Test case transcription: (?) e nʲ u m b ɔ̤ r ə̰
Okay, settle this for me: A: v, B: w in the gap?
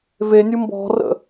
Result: A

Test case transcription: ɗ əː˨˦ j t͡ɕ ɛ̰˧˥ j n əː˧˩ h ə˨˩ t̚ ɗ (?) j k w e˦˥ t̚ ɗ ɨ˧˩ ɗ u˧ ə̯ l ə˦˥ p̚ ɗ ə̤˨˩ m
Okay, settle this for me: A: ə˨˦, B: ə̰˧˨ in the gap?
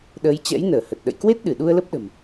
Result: B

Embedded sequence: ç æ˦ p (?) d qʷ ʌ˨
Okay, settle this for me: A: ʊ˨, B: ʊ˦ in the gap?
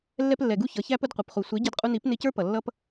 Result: B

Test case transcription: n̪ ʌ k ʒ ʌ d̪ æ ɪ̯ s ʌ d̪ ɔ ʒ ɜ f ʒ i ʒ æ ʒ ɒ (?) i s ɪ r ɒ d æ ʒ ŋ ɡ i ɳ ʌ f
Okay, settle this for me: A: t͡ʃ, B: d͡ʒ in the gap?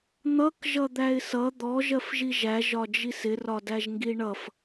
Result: B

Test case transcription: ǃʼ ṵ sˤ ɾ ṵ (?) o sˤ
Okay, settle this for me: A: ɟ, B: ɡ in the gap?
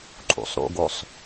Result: B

